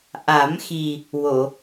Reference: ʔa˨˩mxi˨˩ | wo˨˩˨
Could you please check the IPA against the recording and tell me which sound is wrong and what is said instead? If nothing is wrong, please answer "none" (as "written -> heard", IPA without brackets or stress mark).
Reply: a˨˩ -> a˨˩˦